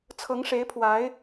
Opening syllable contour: rising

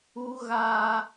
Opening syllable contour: low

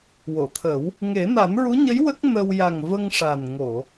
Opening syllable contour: low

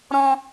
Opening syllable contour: high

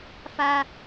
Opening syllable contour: high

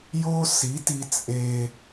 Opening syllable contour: high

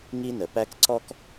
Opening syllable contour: high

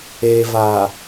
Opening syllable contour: low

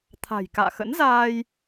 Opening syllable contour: low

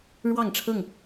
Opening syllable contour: falling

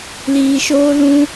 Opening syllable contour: low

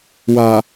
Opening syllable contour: low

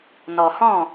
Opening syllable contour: low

